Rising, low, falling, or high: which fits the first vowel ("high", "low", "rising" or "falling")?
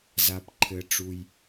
low